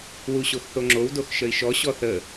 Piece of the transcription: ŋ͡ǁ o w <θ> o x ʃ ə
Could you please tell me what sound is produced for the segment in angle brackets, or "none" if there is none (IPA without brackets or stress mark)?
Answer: d